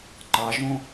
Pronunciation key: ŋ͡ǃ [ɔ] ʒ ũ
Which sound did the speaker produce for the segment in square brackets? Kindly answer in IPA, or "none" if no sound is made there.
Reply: ɑ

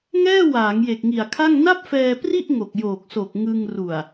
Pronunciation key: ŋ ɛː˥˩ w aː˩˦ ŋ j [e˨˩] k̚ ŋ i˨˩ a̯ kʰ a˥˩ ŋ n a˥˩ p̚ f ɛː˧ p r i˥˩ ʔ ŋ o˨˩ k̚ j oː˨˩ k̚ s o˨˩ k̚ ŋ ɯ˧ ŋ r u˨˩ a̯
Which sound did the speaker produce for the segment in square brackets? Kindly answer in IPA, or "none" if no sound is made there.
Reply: e˨˩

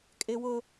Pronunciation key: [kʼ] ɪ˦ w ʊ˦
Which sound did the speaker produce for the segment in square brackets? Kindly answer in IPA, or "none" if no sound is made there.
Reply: kʼ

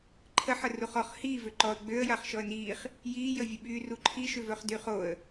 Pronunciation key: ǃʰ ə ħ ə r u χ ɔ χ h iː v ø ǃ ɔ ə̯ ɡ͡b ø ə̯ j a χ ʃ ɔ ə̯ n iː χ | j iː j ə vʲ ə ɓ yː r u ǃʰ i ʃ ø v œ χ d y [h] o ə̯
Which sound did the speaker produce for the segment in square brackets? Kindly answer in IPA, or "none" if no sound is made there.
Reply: χ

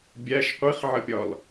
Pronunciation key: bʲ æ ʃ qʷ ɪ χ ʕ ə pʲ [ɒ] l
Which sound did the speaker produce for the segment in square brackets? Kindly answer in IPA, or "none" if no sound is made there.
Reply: ɒ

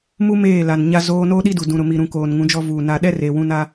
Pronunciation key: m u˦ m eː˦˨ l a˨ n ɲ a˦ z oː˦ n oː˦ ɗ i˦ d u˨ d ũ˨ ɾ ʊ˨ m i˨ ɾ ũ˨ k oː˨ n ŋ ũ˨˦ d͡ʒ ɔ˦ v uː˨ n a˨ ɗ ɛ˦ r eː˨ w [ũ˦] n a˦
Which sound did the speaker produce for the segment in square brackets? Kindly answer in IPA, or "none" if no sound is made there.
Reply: ũ˦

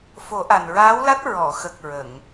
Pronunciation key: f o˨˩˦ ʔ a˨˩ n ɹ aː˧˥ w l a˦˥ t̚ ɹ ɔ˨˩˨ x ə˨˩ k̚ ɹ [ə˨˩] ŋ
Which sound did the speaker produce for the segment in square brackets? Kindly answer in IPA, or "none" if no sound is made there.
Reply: ə˨˩˨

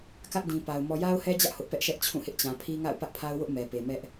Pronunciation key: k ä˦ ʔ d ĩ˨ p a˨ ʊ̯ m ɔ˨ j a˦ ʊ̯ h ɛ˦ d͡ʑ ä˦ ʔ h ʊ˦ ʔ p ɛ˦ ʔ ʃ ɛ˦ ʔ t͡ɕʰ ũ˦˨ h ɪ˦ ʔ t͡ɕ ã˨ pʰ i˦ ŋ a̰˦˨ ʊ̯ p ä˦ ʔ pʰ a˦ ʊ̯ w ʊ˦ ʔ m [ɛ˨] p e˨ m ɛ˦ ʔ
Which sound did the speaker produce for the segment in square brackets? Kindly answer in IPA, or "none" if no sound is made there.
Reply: ɛ˨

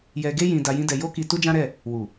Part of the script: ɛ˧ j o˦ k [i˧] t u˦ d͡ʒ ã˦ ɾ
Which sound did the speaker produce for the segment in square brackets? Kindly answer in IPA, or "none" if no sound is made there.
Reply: i˧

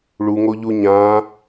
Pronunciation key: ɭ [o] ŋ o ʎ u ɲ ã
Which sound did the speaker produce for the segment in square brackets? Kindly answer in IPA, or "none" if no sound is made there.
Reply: u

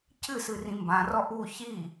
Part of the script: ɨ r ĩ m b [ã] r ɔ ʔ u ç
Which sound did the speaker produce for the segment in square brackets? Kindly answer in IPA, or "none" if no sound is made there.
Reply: ã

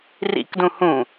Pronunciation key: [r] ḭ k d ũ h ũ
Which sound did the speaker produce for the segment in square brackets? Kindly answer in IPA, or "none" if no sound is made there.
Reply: r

